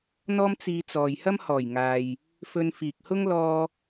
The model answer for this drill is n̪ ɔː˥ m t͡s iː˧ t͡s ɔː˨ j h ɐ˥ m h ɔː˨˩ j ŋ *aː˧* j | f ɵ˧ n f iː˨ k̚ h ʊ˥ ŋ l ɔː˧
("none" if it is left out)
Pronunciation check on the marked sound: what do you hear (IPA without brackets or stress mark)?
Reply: aː˨